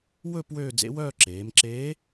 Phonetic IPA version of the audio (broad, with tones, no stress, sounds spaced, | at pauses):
w ɵ˥˧ p w øː˥˧ d͡z ḛ˧˥ w œː˥˧ ǁ eː˩˧ m ǁ eː˧˥